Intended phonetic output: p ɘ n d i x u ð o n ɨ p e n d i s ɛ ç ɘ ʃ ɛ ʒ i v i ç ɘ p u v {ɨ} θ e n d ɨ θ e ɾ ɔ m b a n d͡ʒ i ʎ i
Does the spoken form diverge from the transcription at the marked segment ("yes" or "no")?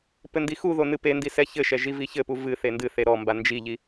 no